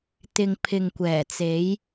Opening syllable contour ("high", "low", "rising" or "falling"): low